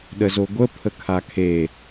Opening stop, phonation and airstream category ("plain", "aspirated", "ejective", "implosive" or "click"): implosive